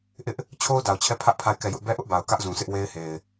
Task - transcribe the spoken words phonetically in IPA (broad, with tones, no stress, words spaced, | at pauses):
ʔɪ˦ʔ | t͡ɕʰo˦ʊ̯da˨ʊ̯t͡ɕʰɛ˦˨ pʰä˦ʔpʰa˦˨ɪ̯ kɛ˦˨jʊ˦ʔ bɛ˦ʔʊ˦ʔba˨ʊ̯ kä˦ʔzũ˨ sʰɪ˦ʔwe˦ɪ̯he˨ɪ̯